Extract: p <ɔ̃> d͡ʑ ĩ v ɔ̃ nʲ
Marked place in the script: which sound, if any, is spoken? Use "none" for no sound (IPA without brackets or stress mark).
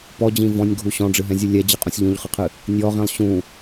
ɔ